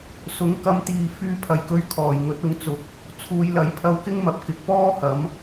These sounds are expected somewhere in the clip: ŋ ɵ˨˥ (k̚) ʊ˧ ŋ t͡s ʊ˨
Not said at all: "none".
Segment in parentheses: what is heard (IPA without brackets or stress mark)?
t̚